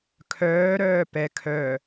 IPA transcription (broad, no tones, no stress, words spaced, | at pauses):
kʰœːɾœː pɛ kʰœ